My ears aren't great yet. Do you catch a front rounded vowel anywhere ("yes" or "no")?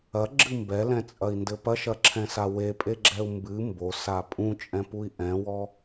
no